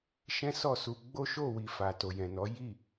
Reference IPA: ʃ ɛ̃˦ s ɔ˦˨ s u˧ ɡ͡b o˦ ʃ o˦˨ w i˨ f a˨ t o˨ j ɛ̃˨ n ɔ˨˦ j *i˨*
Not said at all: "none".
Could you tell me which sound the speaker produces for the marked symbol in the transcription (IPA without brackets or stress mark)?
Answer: i˦˨